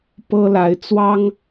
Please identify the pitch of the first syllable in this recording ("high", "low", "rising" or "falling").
high